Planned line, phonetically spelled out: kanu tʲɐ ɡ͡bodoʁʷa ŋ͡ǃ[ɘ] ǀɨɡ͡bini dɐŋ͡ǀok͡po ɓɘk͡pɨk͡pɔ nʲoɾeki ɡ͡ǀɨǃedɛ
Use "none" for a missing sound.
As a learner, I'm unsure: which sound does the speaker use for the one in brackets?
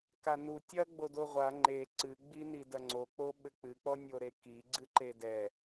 e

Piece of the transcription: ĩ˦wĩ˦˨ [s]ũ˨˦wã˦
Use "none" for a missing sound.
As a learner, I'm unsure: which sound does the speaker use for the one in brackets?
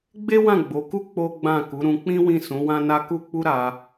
s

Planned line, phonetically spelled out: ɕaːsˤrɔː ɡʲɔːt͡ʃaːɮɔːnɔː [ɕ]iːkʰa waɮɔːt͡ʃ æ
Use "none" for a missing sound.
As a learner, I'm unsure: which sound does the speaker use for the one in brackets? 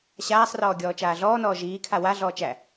ʒ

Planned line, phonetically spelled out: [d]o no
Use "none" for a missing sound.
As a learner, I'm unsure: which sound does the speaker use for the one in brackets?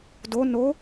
d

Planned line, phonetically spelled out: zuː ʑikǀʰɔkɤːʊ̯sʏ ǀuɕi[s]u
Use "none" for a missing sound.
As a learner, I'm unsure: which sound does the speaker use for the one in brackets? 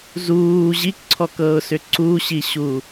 ɕ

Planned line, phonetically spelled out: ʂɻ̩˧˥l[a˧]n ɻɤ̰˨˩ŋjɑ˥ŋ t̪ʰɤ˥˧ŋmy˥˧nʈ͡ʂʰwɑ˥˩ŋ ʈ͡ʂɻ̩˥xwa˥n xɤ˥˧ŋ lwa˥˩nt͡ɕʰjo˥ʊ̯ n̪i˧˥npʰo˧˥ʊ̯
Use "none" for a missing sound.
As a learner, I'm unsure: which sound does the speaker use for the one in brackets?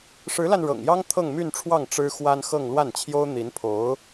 a˧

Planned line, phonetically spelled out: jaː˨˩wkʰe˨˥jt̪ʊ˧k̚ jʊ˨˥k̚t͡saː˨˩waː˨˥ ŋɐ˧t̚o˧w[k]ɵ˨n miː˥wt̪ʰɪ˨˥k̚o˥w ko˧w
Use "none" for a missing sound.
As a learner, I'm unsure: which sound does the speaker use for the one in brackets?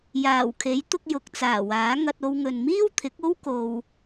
ŋ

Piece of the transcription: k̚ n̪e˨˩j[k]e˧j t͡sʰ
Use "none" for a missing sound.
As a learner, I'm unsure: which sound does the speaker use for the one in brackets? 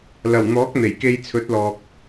k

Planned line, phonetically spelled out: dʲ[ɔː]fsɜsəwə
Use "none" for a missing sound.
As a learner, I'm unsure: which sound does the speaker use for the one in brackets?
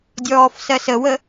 ɔː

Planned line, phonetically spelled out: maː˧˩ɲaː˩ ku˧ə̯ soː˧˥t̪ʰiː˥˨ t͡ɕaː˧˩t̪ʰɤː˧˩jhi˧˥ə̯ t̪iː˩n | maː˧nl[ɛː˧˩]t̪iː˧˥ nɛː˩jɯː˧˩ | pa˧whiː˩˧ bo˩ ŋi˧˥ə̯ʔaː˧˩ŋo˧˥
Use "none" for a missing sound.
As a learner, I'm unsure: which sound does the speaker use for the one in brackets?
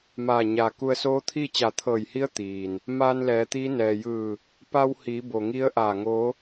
ɛː˩˧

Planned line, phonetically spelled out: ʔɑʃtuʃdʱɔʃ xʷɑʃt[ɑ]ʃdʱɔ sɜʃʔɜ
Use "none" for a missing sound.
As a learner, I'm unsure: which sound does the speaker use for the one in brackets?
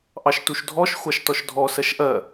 ɔ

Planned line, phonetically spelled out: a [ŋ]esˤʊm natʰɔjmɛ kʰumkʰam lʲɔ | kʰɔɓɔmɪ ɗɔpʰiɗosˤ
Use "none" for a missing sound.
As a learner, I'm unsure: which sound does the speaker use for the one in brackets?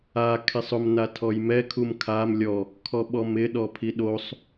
kʰ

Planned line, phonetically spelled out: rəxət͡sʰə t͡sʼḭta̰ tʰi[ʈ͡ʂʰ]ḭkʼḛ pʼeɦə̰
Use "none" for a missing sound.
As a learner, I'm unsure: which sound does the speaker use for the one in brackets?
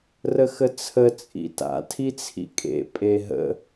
t͡sʰ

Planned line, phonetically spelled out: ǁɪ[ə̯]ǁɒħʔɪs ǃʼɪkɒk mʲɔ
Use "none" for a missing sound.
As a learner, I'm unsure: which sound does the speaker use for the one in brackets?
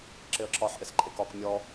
ə̯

